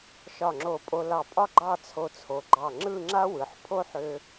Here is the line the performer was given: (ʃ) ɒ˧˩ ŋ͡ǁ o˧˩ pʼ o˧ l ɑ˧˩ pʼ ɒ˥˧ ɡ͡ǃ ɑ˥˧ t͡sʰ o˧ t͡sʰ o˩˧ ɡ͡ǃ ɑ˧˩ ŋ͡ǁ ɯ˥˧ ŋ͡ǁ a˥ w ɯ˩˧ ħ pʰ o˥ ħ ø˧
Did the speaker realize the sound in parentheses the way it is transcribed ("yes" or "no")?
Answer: yes